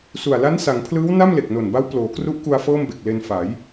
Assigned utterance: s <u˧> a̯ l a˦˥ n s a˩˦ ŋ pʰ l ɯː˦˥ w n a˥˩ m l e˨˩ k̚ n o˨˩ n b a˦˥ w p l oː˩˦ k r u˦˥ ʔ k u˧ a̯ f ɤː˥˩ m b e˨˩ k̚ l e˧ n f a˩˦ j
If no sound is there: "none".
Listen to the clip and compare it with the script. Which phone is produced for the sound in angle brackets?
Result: u˨˩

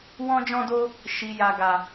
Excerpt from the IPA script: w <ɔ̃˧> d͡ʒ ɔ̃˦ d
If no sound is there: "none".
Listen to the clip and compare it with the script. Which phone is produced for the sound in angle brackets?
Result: ɔ̃˦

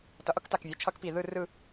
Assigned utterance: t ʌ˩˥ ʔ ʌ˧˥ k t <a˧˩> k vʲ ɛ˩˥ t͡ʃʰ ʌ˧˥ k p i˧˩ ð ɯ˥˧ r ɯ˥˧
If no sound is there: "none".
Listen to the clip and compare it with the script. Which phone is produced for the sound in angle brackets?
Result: a˧˩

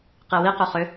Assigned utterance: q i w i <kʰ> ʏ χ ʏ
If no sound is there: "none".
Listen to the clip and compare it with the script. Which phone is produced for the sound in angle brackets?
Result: q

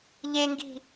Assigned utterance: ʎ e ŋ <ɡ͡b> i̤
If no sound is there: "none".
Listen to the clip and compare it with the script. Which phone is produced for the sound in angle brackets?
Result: ɡ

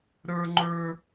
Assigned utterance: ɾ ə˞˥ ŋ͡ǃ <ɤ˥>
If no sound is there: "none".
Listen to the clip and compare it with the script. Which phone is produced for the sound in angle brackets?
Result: ə˞˥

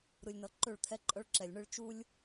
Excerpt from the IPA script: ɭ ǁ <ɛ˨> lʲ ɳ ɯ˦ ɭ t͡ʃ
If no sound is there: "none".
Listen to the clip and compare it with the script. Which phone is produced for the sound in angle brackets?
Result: ɛ˨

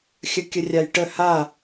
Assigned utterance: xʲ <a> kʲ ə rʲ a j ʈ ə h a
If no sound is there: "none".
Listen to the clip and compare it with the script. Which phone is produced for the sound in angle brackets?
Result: ə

